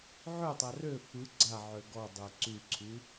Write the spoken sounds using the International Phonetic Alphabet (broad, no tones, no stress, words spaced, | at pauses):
ʕøtˤa rø fɯ ɡ͡ǀa ʕøɡɔdˤø ǀyǀʰy